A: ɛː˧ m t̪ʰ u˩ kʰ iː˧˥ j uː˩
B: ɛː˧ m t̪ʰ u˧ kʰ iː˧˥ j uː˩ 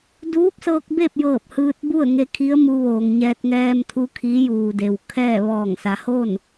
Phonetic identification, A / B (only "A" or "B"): B